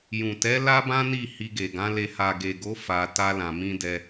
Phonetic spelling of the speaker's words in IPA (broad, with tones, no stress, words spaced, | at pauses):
jũ˨tɛ˨˦ la˦bã˦ni˦˨ hi˧ɡe˨ɡã˨˦le˧ ha˨ɡe˨ɡo˨˦ fa˧ ta˧lã˨mĩ˧dɛ˧